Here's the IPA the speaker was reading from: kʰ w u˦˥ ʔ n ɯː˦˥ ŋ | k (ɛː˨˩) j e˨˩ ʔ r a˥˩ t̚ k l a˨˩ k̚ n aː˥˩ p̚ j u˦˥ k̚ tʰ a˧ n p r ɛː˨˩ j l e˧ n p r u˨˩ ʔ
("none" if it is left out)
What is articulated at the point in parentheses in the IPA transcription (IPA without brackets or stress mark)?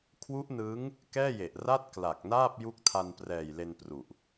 ɛː˥˩